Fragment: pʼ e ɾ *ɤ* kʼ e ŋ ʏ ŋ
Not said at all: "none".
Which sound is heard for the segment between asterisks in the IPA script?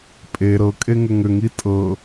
ɤ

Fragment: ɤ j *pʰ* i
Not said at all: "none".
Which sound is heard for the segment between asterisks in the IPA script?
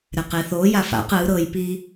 p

